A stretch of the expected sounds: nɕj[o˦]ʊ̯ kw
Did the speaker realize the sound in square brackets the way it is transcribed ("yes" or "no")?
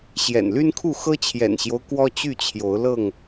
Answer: yes